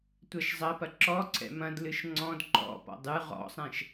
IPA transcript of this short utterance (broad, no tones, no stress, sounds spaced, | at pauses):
tʷ ɛ ʃ zˤ ɐ p ɐ ǁ ɔ ǀʰ ɛ̰ m ɐ̃ d l ɨ ʃ ŋ͡ǀ ɔ̃ d ǃ ɔ̰ p ɔ̰ dˤ ɨ ʁ ɔ̰ sˤ ɛ̃ ʃ